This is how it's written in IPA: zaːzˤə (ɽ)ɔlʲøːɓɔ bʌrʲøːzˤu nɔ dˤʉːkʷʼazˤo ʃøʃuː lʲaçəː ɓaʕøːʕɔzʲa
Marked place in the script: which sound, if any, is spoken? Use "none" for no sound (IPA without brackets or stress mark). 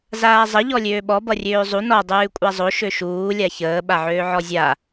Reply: ʎ